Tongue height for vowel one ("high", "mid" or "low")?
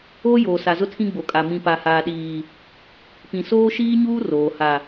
mid